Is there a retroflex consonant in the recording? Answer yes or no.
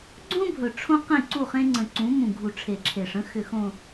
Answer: yes